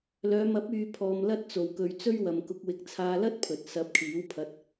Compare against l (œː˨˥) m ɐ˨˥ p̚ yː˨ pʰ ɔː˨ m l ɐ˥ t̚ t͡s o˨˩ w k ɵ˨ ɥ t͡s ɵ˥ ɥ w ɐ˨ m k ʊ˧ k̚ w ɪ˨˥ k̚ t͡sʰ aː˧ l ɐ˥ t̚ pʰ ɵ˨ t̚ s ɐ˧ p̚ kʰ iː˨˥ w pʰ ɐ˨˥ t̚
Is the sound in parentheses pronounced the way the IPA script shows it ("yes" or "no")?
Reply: no